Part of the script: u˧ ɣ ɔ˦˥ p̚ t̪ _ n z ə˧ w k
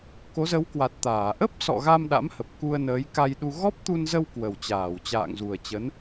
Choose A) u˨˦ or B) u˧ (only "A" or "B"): B